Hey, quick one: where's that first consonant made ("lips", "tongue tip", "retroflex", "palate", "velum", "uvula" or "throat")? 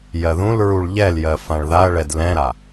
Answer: palate